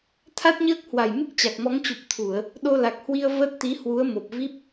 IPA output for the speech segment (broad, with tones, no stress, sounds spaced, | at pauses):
t̪ʰ a˦˥ t̚ ɲ əː˦˥ k̚ h w a˨˩ j m ɨ˦˥ k̚ t͡ɕ a˨˩ k̚ m ɔ˨˦ ŋ t͡ɕ u˨˩ p̚ t̪ʰ u˧˩˨ ə̯ | ɗ o˧ l a˨˩ k̚ h w i˧ ə̯ v ə˦˥ t̚ t̪ i˨˦ h w u˨˦ ə̯ m o˨˩ p̚ v i˦˥ p̚